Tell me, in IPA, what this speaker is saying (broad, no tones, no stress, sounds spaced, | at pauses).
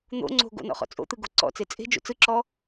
n̪ o̰ ŋ͡ǀ o̤ ɡ o̰ n ɔ̰ χ ɔ̰ t͡sʼ o̰ t̪ ɯ ɡ o ǀ ɔ̰ t͡s e t͡sʼ e̤ d͡ʒ o̰ t͡s ɯ ǁ ɔ